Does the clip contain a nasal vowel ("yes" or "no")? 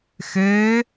no